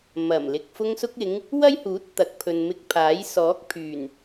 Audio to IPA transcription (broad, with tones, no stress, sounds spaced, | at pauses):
m ɐ˨˩ m l ɪ˨ k̚ f ʊ˧ ŋ s ʊ˧ k̚ ɪ˨˧ ŋ | w ɐ˥ j h uː˨˥ t̚ t̪ ɐ˨˥ k̚ pʰ ɵ˨ n m ɪ˧ k̚ pʰ aː˨˥ j s ɔː˨˥ k̚ pʰ yː˨˩ n